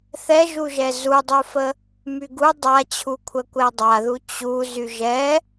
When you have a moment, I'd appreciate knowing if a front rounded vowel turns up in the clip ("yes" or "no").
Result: yes